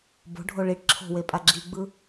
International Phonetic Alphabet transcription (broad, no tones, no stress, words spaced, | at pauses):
bo̤ɖʱo ɭiʈ ǁʰo̤wepʼa ɡ͡ǁiɡ͡bɯ